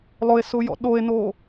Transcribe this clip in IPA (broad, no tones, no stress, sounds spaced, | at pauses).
lˠ ʊ e̯ s ʊ j ɔ̰ ɗ o e̯ n o